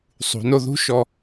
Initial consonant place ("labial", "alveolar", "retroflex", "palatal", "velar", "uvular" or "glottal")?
alveolar